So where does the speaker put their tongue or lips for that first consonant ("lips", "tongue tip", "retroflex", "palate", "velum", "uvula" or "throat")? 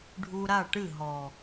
retroflex